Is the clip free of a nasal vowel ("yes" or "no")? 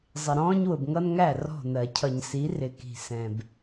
no